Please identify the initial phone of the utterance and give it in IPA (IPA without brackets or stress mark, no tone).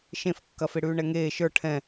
ʃ